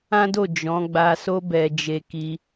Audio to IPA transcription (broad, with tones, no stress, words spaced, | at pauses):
ã˦do˦˨ d͡ʒɔ̃˨˦ ɡ͡ba˧so˦ bɛ˧d͡ʒe˧ ki˧